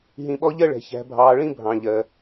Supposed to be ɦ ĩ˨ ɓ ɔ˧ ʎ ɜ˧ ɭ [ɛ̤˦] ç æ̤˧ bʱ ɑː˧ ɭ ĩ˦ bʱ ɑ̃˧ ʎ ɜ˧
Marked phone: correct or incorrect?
incorrect